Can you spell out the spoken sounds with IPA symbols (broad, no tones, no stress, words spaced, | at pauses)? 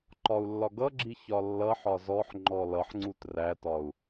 ǃɒu̯lːɒɡʌɡ͡ǁi çɒlːʌħɒ zɔħŋ͡ǃɔ lʌħŋ͡ǀut rætɒu̯